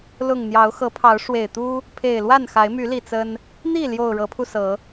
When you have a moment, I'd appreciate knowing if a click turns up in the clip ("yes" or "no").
no